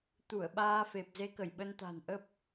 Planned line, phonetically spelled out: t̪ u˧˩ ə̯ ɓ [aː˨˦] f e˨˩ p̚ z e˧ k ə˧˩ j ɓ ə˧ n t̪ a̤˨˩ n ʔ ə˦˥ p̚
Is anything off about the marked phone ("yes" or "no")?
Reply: yes